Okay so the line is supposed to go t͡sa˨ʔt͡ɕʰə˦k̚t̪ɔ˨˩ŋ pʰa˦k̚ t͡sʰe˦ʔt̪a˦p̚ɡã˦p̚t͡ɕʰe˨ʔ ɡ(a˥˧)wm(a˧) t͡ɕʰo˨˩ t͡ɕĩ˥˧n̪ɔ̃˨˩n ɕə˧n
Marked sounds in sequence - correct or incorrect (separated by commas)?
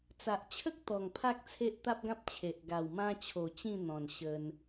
incorrect, incorrect